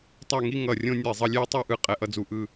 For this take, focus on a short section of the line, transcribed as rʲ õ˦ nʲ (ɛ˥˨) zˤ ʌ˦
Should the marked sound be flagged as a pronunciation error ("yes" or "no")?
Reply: yes